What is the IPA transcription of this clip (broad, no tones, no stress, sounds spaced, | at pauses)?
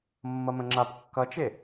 mː ʌ m ə̃ ŋ͡ǁ a p kː ʌ t͡ʃ e